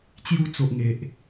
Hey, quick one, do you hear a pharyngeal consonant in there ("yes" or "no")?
no